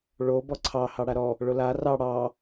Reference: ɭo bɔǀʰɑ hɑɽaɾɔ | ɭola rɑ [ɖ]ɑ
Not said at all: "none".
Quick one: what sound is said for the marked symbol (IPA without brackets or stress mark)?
ɽ